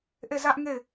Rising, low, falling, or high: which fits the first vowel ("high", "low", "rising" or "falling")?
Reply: falling